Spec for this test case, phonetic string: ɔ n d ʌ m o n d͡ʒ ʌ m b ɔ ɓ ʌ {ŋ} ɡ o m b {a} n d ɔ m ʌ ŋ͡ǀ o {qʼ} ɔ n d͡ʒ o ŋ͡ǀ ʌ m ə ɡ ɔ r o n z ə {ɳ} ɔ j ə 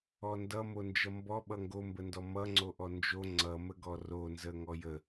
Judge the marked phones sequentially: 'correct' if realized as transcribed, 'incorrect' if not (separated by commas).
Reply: correct, incorrect, incorrect, incorrect